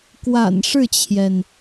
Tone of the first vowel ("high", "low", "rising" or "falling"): low